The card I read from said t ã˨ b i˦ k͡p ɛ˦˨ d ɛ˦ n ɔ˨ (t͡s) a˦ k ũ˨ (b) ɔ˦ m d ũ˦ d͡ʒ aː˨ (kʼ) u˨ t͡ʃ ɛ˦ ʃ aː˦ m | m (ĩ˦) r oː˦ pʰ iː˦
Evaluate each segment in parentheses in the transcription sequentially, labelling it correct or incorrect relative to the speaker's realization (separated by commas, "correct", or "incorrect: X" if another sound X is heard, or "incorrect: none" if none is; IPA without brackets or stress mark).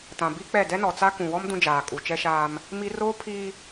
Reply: correct, incorrect: w, correct, incorrect: i˦